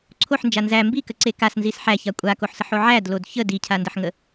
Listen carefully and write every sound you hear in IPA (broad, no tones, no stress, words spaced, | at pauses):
ǀʰoħnd͡ʒa nzæ mbikəǀe kasnzis ħæça kʷʼakoħsəħo ʕædlod çə dicʰandəħŋə